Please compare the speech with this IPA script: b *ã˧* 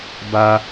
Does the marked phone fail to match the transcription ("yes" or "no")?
yes